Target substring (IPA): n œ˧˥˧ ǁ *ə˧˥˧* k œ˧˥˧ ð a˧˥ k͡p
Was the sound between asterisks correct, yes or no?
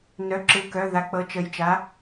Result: no